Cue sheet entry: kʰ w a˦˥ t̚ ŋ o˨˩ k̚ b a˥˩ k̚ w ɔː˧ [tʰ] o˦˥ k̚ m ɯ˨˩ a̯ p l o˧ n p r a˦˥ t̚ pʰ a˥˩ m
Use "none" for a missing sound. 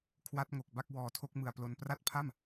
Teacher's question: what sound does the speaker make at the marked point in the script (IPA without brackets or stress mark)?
tʰ